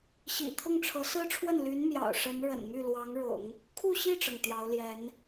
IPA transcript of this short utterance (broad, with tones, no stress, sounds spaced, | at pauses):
ɕ ḭ˨˩ t̪ʰ ʊ˥˩ ŋ ʈ͡ʂʰ ɤ˧˥ s ɹ̩˥ ʈ͡ʂʰ w ə˥˩ n l y˧˥ n m j ɑ̰˨˩ ʊ̯ ʂ ə˧˥ n ɻ ə̰˨˩ n m y˥˩ l w ɑ˧˥ ŋ ɻ ʊ̰˨˩˦ ŋ | kʰ u˥˧ ɕ i˥˩ ʈ͡ʂ ɤ˩ ŋ t̪ j ɑ˧˥ ʊ̯ l j ɛ˧˥ n